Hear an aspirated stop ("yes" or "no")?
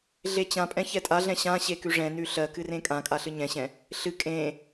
no